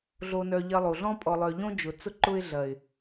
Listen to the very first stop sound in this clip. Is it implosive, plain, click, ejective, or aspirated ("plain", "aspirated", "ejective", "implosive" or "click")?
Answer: ejective